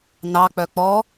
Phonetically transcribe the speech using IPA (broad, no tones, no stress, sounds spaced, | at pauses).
n ɑ k͡p œ k͡p ɔ